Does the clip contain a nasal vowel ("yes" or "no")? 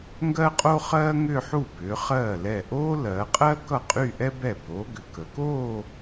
no